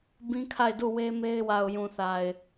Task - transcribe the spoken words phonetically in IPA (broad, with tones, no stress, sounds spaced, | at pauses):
b ĩ˦ kʰ a˦˨ ɪ̯ d u˦˨ w e˦ m e˦ ɪ̯ w a˨ ʊ̯ j ũ˨ θ a˨ ɪ̯